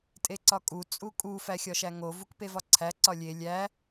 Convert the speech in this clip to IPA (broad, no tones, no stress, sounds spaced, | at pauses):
tʼ e ǀ ɒ kʼ u t͡sʼ u kʼ u f æ xʲ ɒ ʃ æ ŋ o v u k p e v ɒ ǀʰ æ ǀ ɒ lʲ e lʲ æ